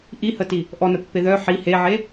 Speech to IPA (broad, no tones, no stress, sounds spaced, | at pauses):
ʔ i h ə t i | ʔ ɔ n ə pː e ð œ ħ i h e ʕ e